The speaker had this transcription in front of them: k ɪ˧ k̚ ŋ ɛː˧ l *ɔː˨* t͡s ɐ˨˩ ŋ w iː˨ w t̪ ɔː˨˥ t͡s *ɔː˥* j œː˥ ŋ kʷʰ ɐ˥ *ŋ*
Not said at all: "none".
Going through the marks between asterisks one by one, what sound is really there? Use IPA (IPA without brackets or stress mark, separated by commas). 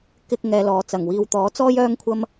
ɔː˨, ɔː˥, m